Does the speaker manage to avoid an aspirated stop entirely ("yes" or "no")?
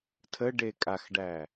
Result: no